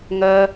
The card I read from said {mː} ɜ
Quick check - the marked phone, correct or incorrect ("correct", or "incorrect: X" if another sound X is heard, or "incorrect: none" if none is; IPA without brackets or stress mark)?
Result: incorrect: ŋ